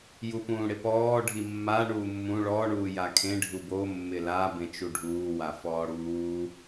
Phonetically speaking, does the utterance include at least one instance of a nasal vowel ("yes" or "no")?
yes